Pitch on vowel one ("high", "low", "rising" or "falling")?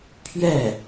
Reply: falling